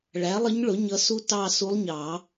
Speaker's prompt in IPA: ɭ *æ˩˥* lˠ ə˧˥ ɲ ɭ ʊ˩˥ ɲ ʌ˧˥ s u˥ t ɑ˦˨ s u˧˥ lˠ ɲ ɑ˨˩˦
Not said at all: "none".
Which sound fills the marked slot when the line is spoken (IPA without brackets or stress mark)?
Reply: æ˩˥